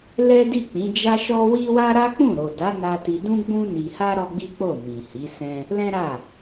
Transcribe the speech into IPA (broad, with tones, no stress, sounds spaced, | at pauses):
l ɛ˦ d i˦˨ k͡p ĩ˨˦ d͡ʒ a˦ ʃ ɔ˦ w i˦ w a˦ ɾ a˦ k͡p ũ˦˨ ɾ o˨ d a˨˦ n a˧ t i˧ d ũ˦ ɡ͡b ũ˦ n i˧ h a˦ ɾ ɔ˦ ɡ͡b i˦ k͡p o˦˨ m ĩ˨ h i˨˦ s ɛ̃˦ | l ɛ̃˦ ɾ a˦˨